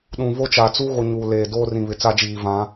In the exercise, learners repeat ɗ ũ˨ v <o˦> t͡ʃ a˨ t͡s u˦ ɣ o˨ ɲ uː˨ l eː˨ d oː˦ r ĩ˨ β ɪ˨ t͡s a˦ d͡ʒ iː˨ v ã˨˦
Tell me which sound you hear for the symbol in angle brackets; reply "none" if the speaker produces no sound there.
o˦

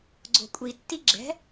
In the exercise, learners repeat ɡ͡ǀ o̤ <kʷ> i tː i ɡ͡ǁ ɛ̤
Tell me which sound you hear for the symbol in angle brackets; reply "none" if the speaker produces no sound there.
kʷʼ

